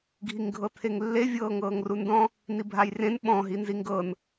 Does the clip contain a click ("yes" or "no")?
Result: no